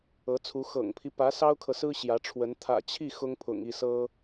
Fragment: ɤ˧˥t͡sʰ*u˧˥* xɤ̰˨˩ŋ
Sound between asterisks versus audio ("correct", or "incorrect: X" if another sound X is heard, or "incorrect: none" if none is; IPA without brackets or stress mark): correct